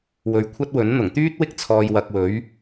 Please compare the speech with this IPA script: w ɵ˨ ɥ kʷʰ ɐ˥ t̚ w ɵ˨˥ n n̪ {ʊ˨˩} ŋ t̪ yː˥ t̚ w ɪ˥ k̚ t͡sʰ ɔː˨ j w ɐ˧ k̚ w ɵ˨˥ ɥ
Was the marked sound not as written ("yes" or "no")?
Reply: no